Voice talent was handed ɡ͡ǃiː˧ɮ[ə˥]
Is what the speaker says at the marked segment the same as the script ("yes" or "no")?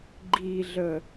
no